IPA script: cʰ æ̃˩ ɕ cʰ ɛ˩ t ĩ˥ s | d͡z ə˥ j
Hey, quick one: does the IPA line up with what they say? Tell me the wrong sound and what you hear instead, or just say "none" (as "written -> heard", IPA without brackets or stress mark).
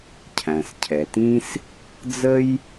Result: ɕ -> s